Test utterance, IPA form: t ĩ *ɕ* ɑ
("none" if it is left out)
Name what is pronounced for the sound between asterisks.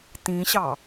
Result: ɕ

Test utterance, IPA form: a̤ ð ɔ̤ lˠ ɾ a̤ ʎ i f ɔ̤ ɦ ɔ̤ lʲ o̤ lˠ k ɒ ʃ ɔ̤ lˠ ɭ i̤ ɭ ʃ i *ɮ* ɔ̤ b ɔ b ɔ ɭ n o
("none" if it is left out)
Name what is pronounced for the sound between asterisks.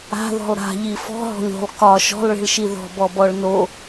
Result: ð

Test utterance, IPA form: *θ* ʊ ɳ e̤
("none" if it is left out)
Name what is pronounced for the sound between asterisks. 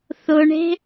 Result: θ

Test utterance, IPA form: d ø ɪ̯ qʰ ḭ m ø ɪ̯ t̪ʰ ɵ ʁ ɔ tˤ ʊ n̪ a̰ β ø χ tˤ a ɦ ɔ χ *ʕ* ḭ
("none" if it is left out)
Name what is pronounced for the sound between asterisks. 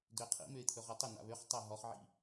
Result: ʕ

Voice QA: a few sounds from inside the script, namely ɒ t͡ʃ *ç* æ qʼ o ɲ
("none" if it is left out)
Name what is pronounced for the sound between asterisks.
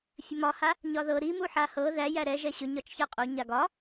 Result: ç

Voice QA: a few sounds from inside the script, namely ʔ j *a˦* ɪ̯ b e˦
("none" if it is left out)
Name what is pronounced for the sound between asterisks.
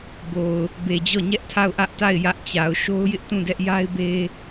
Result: a˦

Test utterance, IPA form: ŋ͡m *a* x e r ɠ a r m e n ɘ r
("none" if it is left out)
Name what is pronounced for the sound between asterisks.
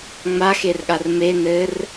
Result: a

